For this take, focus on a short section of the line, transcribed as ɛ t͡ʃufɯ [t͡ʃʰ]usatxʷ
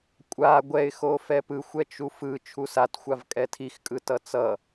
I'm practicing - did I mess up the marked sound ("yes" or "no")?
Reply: no